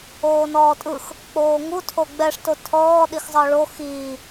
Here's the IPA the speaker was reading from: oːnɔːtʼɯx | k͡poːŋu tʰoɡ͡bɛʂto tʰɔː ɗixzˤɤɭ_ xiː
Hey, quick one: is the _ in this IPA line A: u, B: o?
B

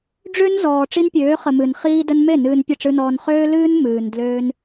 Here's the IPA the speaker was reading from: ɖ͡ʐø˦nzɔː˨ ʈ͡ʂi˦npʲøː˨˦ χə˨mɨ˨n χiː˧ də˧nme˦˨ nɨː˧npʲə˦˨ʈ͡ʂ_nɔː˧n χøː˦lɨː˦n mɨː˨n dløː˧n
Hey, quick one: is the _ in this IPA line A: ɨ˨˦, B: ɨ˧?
B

